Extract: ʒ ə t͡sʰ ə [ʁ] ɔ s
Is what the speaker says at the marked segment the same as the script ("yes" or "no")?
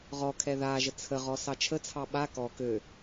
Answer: yes